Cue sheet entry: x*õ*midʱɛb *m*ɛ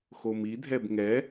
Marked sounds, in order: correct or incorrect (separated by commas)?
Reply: incorrect, incorrect